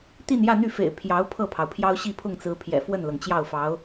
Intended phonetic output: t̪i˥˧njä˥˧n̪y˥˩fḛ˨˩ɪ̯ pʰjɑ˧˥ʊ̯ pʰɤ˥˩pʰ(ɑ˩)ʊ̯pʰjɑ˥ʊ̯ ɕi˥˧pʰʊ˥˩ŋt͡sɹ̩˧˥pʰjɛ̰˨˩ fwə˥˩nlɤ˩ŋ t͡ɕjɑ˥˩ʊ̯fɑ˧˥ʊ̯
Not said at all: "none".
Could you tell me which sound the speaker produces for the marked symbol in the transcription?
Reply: ɑ˩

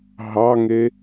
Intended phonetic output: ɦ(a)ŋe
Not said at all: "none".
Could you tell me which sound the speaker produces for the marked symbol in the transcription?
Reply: ɑ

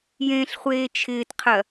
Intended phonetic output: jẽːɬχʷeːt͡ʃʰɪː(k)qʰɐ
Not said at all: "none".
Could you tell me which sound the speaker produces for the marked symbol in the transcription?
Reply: t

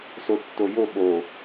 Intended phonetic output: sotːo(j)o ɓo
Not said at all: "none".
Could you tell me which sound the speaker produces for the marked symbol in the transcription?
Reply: j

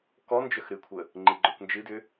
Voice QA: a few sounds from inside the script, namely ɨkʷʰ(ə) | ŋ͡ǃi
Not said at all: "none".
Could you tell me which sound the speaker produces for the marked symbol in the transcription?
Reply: ə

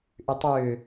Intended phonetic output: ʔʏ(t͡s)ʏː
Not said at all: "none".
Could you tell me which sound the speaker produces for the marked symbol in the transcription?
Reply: tˤ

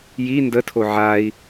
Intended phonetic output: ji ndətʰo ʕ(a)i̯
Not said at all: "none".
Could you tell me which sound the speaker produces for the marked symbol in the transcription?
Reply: a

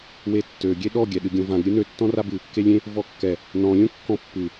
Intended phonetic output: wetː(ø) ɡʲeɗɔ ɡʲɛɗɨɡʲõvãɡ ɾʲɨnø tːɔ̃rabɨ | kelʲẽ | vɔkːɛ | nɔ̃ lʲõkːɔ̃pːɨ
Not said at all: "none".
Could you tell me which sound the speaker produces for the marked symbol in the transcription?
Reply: ø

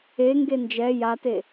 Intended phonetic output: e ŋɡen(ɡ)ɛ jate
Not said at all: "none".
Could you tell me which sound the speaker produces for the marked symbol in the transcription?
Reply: d͡ʒ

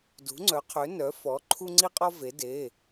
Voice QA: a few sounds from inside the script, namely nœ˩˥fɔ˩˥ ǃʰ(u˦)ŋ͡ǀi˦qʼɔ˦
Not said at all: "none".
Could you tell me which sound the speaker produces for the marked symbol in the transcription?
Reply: u˦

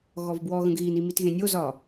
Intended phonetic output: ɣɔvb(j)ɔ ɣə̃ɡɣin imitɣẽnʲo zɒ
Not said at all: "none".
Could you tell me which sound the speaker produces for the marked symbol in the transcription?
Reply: w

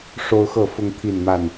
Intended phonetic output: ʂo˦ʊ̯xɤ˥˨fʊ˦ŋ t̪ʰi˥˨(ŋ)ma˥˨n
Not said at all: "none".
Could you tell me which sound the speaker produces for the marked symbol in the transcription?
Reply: n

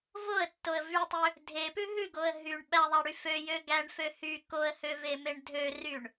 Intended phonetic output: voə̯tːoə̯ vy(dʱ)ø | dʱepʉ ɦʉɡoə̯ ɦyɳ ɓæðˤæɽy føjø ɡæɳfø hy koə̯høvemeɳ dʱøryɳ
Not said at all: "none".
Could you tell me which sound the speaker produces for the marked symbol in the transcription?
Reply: tˤ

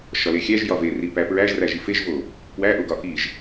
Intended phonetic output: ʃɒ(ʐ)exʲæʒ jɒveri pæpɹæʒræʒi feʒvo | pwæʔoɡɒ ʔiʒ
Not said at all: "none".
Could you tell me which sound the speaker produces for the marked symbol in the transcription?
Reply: l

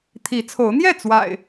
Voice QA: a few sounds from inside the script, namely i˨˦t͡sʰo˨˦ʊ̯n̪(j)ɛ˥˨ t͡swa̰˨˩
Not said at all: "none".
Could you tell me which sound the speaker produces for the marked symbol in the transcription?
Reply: j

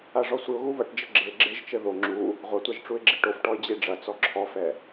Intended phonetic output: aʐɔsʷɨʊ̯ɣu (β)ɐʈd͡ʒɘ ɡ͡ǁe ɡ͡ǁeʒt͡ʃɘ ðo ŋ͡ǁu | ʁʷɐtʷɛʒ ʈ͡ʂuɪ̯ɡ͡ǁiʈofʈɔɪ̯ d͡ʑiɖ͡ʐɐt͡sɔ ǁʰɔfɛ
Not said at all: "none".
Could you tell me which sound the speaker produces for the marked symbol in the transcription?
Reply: β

